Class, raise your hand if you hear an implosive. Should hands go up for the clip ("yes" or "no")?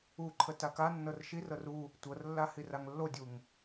no